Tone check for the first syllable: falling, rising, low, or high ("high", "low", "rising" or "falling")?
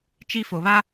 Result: high